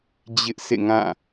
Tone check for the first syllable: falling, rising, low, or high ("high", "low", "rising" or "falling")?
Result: high